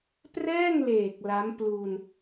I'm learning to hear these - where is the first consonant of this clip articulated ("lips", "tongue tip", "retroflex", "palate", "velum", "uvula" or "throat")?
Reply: lips